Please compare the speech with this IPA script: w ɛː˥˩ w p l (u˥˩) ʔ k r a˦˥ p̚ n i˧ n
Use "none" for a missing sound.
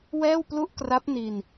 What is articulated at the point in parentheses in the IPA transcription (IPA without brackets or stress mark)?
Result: u˥˩